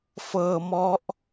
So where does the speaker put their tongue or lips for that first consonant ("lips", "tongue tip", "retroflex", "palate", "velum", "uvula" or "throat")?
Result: lips